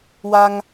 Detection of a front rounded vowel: absent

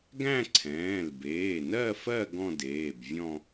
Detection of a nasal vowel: present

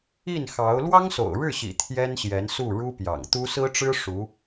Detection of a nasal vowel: absent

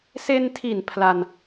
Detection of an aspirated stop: present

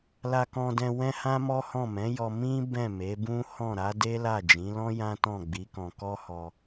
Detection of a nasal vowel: present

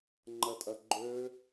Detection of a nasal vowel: absent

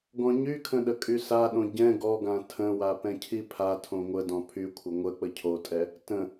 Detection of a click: absent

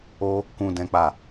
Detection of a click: absent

